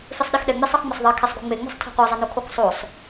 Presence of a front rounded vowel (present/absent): absent